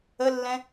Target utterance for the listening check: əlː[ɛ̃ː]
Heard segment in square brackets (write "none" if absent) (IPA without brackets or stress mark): ɛ̃